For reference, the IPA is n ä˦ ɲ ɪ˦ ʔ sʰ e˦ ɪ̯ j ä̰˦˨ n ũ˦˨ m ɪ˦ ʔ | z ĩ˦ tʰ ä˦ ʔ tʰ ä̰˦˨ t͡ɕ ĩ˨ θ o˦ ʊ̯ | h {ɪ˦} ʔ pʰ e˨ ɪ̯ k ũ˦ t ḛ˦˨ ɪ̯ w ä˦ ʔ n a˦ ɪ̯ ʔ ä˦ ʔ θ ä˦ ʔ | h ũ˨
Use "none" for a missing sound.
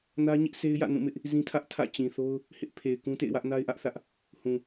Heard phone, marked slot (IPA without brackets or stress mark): ɪ˦